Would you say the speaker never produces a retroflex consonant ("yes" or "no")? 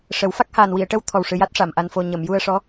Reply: no